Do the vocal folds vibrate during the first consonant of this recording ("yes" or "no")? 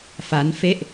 no